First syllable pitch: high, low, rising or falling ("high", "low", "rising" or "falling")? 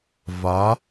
rising